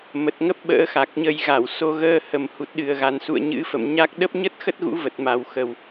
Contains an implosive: yes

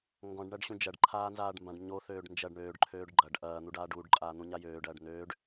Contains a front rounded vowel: yes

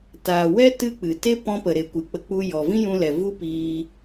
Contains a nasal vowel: yes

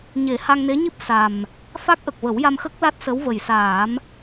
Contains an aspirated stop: no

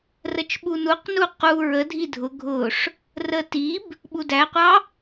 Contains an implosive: yes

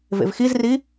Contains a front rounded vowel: no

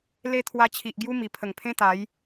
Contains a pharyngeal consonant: no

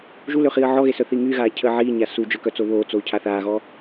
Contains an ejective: no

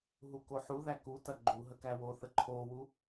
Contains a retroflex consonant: no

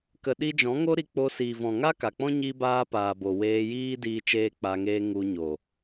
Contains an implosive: yes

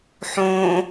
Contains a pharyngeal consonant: yes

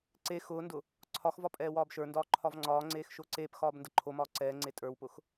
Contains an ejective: yes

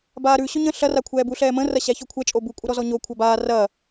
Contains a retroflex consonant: no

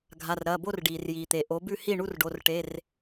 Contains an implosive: no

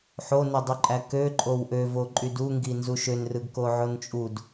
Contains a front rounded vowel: yes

